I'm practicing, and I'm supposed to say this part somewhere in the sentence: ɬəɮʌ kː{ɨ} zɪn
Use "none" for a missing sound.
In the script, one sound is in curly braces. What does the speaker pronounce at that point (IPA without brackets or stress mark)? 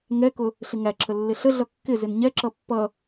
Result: ɪ